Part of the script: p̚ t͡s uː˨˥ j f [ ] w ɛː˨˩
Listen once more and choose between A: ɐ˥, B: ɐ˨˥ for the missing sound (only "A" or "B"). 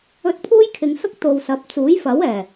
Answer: B